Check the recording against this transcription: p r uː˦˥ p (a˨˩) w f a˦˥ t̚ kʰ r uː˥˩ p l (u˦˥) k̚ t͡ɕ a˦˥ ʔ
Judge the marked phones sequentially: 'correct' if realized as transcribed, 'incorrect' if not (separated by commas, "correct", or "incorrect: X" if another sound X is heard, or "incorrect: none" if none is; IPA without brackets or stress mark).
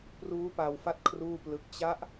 incorrect: a˧, incorrect: ɯ˦˥